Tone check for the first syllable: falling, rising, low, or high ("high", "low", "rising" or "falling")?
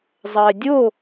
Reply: low